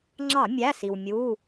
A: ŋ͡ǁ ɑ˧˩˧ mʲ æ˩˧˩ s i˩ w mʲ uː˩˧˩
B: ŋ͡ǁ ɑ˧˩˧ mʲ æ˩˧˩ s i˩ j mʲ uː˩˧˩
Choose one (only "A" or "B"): A